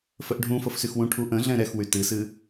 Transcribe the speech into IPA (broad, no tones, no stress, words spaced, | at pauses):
fəʔɖʱũ fɤfsyxwũʈʰu ʔə̃ɮɛ̃ ɾɛxwy tɨsɨ